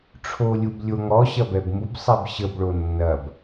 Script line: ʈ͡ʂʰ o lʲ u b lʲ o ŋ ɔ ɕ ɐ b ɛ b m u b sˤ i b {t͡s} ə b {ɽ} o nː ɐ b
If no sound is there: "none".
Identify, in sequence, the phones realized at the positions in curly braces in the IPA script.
ɕ, ɭ

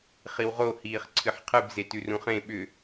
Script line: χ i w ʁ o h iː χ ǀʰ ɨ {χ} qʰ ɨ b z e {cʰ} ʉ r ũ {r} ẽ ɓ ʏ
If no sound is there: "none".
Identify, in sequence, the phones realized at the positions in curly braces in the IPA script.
ħ, t, χ

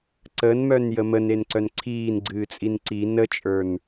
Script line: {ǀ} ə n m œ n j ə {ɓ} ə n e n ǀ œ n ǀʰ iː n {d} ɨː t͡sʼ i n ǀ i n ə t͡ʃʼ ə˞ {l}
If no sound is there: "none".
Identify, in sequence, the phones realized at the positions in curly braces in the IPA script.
ǀ, m, ɡ͡ǀ, n

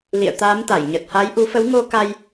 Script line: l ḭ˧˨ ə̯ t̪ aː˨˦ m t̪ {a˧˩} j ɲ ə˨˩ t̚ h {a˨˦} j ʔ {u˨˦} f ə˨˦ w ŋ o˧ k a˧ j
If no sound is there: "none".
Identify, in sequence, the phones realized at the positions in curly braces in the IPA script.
a˧˩, a˨˦, u˨˦

